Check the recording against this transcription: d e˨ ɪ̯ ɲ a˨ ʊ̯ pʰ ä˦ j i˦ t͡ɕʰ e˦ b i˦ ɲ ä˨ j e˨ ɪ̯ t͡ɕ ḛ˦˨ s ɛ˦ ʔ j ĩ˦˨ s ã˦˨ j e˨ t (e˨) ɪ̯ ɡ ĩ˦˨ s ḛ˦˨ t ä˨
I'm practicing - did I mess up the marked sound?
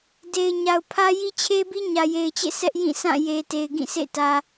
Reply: no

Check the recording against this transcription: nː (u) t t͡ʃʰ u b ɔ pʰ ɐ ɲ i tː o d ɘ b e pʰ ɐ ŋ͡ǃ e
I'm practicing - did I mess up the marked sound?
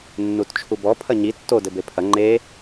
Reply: no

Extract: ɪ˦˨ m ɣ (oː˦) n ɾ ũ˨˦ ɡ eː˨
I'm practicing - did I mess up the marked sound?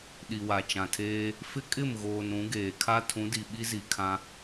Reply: yes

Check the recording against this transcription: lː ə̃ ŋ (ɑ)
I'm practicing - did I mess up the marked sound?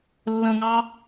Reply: no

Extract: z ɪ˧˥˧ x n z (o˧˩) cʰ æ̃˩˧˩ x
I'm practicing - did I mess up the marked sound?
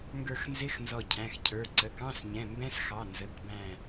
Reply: yes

